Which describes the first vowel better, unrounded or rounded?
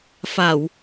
unrounded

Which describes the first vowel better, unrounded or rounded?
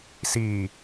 unrounded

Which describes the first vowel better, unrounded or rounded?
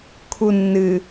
rounded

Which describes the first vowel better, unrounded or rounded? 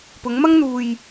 rounded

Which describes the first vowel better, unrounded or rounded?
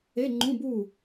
unrounded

